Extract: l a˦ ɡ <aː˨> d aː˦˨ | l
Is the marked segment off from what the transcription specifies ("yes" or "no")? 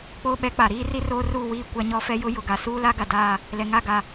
yes